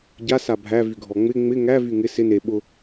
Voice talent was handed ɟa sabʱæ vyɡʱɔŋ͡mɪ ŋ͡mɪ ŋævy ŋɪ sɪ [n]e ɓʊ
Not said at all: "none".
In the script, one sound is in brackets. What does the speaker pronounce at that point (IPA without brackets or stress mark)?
n